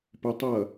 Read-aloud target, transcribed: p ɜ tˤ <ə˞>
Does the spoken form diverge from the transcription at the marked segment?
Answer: yes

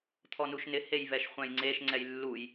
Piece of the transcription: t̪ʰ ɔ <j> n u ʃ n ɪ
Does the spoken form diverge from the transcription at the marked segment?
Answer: yes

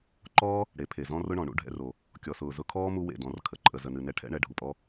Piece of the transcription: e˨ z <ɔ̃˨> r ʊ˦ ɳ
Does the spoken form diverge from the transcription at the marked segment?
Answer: yes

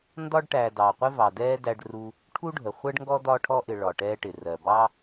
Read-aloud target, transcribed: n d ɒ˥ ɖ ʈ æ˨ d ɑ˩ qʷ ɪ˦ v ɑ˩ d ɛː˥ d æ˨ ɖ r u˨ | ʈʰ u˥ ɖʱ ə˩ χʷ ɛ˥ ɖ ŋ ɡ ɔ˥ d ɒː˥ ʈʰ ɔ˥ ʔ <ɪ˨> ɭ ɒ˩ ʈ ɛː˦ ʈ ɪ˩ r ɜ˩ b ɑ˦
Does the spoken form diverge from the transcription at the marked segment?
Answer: no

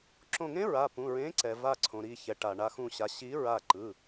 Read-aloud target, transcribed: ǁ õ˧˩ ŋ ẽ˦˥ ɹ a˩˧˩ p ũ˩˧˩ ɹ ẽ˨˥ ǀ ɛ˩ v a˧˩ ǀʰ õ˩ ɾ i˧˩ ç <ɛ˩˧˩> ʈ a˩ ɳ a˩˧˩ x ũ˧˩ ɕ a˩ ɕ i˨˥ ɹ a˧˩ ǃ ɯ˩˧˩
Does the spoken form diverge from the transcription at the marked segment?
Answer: yes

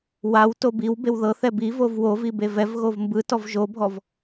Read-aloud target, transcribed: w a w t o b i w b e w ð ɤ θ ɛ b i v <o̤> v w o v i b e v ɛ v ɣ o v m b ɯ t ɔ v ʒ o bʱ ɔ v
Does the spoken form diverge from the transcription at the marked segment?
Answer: yes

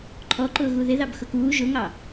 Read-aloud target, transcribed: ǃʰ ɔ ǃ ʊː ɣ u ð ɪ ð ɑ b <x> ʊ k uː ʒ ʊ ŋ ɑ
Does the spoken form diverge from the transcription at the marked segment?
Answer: no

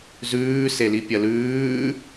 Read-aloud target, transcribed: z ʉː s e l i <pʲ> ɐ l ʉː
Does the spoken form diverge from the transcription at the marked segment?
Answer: no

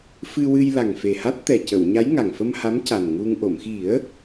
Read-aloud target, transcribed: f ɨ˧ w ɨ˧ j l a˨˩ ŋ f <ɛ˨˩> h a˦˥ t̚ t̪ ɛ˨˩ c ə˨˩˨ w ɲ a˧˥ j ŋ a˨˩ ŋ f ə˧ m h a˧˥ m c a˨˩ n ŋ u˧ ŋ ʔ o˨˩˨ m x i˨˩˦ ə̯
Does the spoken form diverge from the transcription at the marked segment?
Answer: yes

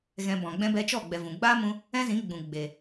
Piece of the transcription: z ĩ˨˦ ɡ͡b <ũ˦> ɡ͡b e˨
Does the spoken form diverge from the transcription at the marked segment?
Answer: yes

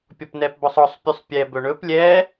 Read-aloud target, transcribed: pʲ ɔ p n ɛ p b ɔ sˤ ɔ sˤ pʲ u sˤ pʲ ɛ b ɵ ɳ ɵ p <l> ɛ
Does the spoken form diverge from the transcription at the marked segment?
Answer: yes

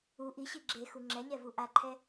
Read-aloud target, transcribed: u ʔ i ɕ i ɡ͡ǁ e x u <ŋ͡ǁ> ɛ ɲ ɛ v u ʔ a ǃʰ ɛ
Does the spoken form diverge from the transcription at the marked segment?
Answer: no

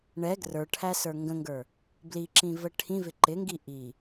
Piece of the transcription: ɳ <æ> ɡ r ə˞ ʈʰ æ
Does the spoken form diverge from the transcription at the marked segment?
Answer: yes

